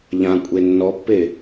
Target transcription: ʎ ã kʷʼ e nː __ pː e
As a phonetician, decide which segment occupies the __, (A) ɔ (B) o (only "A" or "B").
A